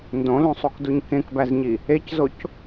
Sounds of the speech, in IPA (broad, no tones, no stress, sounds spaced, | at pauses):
n d õ l ũ sˤ u k d u ɲ k ẽ k b æ z ɲ i | e c z o c